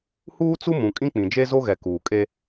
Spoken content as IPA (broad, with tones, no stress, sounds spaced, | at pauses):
h uː˦ t͡s u˦ m ũ˨ kʼ ĩ˦ k͡p ĩ˨ d͡ʒ e˦ z o˦ ɣ ɛ˨ k uː˨ kʼ e˦